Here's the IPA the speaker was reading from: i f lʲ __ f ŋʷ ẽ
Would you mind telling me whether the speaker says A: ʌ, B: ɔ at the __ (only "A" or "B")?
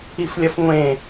A